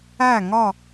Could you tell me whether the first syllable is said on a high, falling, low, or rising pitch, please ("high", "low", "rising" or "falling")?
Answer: falling